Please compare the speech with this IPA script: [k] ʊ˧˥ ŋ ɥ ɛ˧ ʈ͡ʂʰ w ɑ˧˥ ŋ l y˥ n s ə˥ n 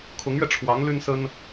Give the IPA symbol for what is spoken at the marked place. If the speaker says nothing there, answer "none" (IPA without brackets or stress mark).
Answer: kʰ